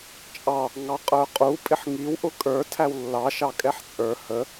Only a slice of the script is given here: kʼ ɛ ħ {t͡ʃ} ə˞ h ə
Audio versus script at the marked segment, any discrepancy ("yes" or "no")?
yes